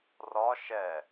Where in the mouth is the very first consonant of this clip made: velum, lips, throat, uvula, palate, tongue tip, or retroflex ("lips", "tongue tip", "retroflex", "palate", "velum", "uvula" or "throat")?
tongue tip